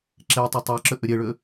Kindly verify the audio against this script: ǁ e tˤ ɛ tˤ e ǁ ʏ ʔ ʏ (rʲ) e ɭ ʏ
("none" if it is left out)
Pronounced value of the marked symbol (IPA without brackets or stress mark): ɾʲ